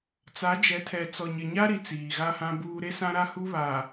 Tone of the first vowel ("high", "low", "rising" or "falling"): rising